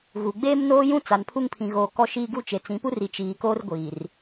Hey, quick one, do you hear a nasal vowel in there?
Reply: yes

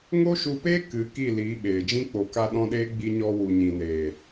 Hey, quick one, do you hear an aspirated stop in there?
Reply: no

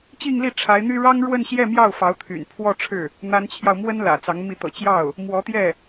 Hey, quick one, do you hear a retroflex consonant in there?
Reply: yes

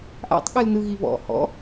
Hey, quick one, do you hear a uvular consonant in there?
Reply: no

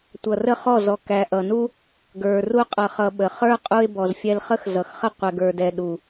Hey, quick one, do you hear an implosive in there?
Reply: yes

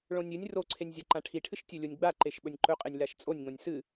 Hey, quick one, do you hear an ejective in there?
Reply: yes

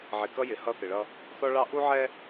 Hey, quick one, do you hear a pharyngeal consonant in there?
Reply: yes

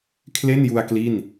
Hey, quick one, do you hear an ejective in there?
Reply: no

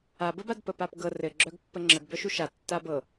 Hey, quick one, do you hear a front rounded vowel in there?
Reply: yes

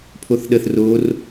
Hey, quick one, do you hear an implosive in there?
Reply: yes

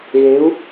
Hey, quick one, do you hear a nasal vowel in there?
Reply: no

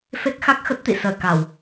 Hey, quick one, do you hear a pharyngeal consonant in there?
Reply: no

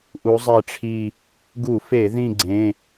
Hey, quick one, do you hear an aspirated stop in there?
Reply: yes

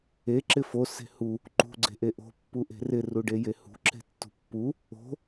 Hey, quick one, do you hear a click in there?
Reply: yes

